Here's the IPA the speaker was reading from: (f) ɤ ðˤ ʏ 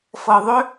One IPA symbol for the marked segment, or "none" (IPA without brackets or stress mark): f